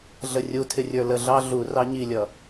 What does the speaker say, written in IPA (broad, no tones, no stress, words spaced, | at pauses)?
ɮərʲu tʰɪrʲə˞lə ɮɑɮu rɑɲilʲʌ